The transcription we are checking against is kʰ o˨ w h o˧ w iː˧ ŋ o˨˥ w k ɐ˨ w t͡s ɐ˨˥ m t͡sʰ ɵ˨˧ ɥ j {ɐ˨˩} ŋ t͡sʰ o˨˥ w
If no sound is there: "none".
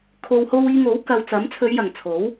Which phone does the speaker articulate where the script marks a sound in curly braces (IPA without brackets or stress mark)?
ɐ˨˩